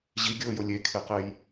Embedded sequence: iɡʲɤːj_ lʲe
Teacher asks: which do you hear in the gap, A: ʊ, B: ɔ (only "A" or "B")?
A